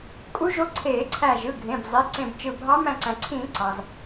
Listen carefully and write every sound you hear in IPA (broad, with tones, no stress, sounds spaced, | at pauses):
kʼ u˧˥ ʒ o˧˥ ǀʰ eː˧˩˧ ǀʰ æ˧˩ ʒ ɯ˩˧˩ ɡʱ ẽ˩˧˩ b zˤ e˩˧˩ ǀ ẽ˧˩ b t͡ʃ ɯ˧˩ bʱ ɑ˧˥ m æ̃˧˩ ǀ æ̃˩ ǀʰ ĩː˧˩˧ ǀ ɑ˩ z